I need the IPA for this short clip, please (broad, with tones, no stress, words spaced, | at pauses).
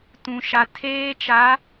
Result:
tũ˨ʃa˨ tʰeː˦t͡ʃa˨˦